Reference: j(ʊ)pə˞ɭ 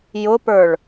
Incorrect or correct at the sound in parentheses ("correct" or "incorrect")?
correct